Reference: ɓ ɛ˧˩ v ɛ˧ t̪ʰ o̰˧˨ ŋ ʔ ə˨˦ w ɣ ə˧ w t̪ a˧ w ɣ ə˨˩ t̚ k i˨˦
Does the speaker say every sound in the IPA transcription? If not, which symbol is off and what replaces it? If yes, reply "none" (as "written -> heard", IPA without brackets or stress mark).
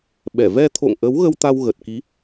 none